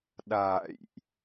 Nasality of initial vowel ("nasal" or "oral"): oral